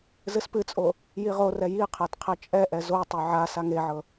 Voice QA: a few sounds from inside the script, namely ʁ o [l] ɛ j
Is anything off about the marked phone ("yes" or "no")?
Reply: yes